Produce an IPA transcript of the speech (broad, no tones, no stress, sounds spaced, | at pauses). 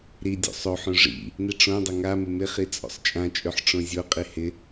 ɾ i dʲ o̰ sˤ o ħ õ ʐ ḭ | n i ʈ͡ʂ õ dˤ ɵ ŋ a m ɪ m ɪ χ i t͡sʼ o̰ sˤ t͡ʃʼ ã t͡ʃʼ ɵ ħ ʈ͡ʂ õ zʲ o qʼ i h ɪ